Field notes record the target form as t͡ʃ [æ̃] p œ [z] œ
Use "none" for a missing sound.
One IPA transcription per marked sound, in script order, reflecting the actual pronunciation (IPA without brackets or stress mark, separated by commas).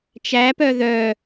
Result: æ, ð